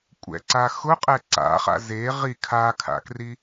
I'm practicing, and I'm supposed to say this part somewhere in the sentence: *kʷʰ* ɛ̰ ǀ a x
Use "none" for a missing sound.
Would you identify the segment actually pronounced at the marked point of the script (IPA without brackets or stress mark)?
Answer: kʷʼ